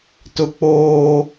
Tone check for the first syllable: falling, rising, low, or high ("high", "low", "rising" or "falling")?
low